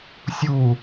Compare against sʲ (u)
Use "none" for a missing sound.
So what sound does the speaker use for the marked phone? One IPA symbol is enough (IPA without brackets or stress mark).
u